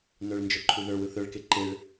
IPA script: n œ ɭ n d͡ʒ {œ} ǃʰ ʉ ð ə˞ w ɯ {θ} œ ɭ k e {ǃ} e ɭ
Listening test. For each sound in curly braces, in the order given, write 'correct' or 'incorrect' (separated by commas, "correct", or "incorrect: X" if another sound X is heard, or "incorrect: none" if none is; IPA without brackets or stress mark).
correct, correct, correct